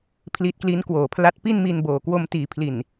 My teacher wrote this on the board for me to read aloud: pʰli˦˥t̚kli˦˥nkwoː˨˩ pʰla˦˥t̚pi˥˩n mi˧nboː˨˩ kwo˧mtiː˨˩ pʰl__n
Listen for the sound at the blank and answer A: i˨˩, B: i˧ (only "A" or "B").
A